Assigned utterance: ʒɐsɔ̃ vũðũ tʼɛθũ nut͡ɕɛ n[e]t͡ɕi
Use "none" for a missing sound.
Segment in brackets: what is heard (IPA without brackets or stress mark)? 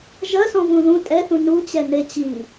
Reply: e